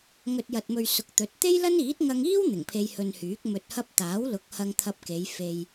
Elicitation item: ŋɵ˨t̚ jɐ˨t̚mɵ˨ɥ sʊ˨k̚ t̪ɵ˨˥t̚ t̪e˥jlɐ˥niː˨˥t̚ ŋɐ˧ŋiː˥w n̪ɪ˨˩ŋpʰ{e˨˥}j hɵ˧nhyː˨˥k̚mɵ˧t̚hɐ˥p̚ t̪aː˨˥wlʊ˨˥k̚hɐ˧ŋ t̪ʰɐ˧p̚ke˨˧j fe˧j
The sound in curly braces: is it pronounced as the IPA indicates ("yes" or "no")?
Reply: no